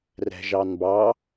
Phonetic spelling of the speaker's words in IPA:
r ɛ̤ ʒ ɑ n b ɑ

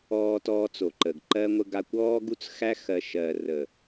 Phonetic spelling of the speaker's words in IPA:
ɔː˦ t ɔː˦ t͡s o˨ ǃ ə˨ ɡ ǃ ɜ˦ ŋʷ ə˦ ɡ a˦ kʷ ɔː˦ ɡ u˦ t͡s x æ˦ x ɜ˨ ʃ ɜ˨ r ə˨

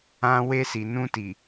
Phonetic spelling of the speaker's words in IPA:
ã˧ w e˧ s i˨ n ũ˧ t i˨

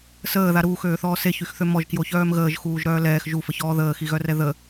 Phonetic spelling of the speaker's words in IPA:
s əː ð a ɾ uː x øː θ ɔː s e ç y x θ ø m ɔ ʒ k j o ç œː m ɣ əː ʒ x uː ʒ ɾ œː l ɛː x ʒ u f ə ç ɔː ð əː x i ɣ œ r ɛ ð ə

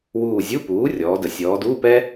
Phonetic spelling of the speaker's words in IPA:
w uː˦˨ zʲ u˧˥˧ p uː˩˥ rʲ ɔː˩˧ d ə˩˧ sʲ ɔː˩˧ d uː˧˥˧ p ɛ˥

